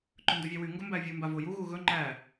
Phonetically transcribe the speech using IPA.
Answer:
ǃ ɵ n d o vʲ æ w y ŋ ɡ ɵ m b æ vʲ u m b a v o j u ɣ u ɣ ɵ ŋ͡ǃ æ

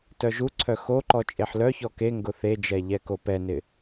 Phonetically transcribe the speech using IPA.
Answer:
t œ ʒ u ǀʰ œ x o ǃ ɔ t͡ʃʼ e ħ l œ ç ɔ k e ŋ ɡ ʊ θ e d͡ʒ ɛ ʎ ɛ k o p ɛ n ɪ

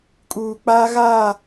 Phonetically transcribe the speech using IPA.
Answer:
kʼ uː˨ k͡p aː˦ ɣ aː˦˨

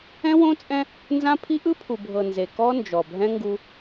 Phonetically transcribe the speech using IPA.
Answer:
ɛ̃˦ w õ˦ t͡sʼ ɛ̃˦ | n z ã˦ pʰ i˦ ʔ ɯ˦ pʰ u˨ bʱ ɤ˨ n z e˨ k ɔ˦ n d͡ʒ ɔ˨ bʱ ɛ̃˦ ŋ ɡ u˦

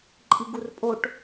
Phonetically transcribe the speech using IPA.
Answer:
ǃʼ i ɡ u r pʼ o ʈ

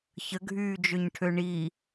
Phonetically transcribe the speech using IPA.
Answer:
ç ə ɡʱ yː d͡ʒ ø ɲ ʈʰ ø ɳ i

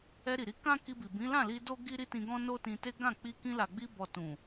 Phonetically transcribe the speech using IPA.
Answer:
ɛ˧ ɾ i˨ ɾ i˧ k ã˦ k i˧ b i˨ b ĩ˨˦ l ã˦˨ l i˧ d o˦ ɡ i˦ ɾ i˦ t ĩ˧ ɡ ɔ̃˦ n o˦ t ĩ˧ t e˦ ɡ ã˦˨ k͡p i˧ k ĩ˧ l a˨ ɡ͡b i˧ b ɔ˨ t ũ˨

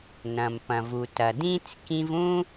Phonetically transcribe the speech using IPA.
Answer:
n ɐ̃˩ m p ɐ̃˩ v u˩ t ɐ˩ d ĩ˥ t͡s k ĩ˧ v ũ˥

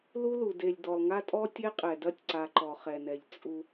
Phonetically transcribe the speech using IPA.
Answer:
l u˦ l u˨ d e˨ lʲ d ɔ˨ lˠ ŋ a˦ tʼ ɔ˦ tʲ e˦ qʼ ɛ˨ d ɐ˦ tʲ ǀ a˨ ǃ ɔ˨ χ ɛ˨ n ɛ˨ ʎ t͡sʼ u˦

